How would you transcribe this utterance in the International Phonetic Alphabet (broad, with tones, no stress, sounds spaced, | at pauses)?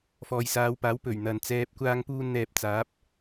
f ɔː˨ j s aː˨˧ w p aː˨˥ w p ɵ˨˩ ɥ n̪ ɐ˨ n t͡s ɛː˨ p̚ kʷ aː˧ ŋ p uː˧ n n̪ ɛː˧ p̚ t͡s aː˨˥ p̚